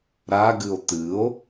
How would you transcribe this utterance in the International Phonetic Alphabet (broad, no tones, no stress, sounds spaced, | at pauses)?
ɾ a ɡ ɨ o̯ t̪ ɨ o̯